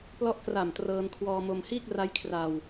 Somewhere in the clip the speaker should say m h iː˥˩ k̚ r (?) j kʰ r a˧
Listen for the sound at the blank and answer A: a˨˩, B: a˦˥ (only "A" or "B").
B